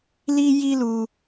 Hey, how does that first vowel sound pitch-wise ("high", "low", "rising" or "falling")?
high